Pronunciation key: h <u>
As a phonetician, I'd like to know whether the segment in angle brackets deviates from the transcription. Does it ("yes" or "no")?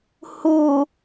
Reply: no